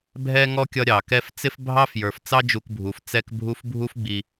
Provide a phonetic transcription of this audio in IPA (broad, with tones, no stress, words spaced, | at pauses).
bʱɛ˥ŋɔ˥ kʲʌ˦ ɾʲɑ˩kɛ˦ft͡sɪ˥f bʱɑ˥fjə˞˩f t͡sɑ˦ d͡ʒu˨kbʱu˩f t͡sɛ˦kbʱu˦f bʱu˥fɡ͡bi˨